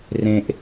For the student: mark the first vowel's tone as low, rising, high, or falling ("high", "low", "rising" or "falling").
high